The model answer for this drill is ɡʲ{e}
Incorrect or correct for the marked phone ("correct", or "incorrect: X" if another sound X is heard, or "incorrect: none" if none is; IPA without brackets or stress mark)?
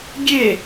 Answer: correct